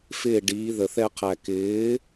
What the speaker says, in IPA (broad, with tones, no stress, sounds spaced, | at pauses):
f ɪː˥˩ ɖ iː˩˥ ð ə˨˩ θ ɛ˧ qʰ æ˨˩ k ɪː˩˥